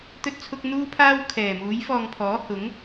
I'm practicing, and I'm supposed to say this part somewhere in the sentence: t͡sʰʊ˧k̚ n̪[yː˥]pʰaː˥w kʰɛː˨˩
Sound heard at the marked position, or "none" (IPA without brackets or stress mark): uː˥